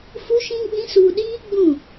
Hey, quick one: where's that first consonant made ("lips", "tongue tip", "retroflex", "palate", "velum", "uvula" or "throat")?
lips